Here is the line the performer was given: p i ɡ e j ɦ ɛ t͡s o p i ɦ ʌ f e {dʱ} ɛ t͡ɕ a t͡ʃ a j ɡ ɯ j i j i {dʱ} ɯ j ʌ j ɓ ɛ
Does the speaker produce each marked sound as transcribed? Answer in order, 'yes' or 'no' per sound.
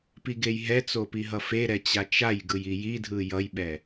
no, yes

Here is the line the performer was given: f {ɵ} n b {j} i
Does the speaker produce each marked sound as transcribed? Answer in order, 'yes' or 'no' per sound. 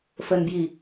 no, yes

